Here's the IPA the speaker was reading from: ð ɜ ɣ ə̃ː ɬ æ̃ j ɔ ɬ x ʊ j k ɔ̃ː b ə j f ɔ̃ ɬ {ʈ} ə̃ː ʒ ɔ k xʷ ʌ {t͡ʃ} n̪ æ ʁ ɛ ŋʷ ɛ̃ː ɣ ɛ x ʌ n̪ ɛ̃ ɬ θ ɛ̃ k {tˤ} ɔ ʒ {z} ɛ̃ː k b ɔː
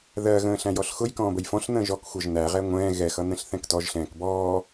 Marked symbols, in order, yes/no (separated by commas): no, no, no, no